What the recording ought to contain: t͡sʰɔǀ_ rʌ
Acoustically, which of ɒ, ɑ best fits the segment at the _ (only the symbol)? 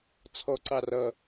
ɑ